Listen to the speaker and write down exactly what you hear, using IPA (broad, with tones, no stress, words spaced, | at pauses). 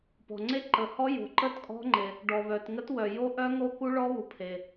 pɔ̤˩ŋ͡ǀe˦˥ǃə˩hɔ˦˥ jo̤˩ǃə˦˥t kʼɔ̤˦˥ŋ͡ǃe˩ | ɖɔ˩βœ˩tŋə˦˥t wœ˩jo˦˥ʔœ˦˥ ŋo˦˥ku˦˥ɭɔ˦˥βu˩ pʰe˩